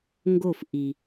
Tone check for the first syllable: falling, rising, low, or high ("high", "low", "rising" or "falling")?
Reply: falling